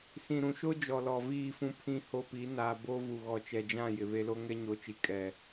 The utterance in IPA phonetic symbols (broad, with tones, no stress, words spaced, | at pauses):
sĩ˨ɾũ˨ʃo˦ d͡ʒɔ˨lɔ˨viː˦˨fũ˦ pʰĩ˦ho˦pi˨˦ naː˨ bo˦ vu˨ɣɔ˨t͡ʃɛ˨d͡ʒã˦˨ jɪ˨βe˦lo˦ ŋɛ˦ɲo˨˦t͡ʃi˨ kʼɛ˨